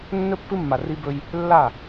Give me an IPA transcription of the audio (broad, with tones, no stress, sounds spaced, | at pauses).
nː ɵ˦ pː ɨ˦ mː a˨ r i˦ b ɵ˦ j | lː a˦˨